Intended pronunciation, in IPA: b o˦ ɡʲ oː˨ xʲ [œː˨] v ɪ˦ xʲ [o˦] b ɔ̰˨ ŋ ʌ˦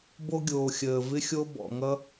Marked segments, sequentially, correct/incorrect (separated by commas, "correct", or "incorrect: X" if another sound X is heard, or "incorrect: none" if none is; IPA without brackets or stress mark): incorrect: əː˨, correct